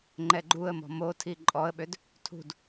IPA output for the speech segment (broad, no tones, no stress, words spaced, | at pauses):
ŋ͡ǃɛɡ͡ǃuə̯mɔ̤ motʰi ǃʼɔə̯ɓød | tʰṳd